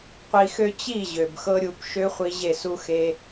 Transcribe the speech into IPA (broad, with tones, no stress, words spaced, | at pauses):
qʷi˧xø˦ t͡ɕi˦˨ ʑø˨bxɤ˧ ɾʲu˧p ʃø˧ χʷi˧ʑe˦˨ su˧xe˧